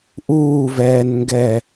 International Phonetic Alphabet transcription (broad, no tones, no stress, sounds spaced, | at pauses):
ʔ uː v ɛː n ŋ ɡ ɛ